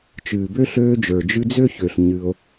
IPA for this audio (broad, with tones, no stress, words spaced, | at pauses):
t͡ʃɨː˨bø˥ɬøː˦d͡ʒə˞˨ d͡ʒɨ˦d͡zø˥çø˨ɬ ɲɨ˦o̯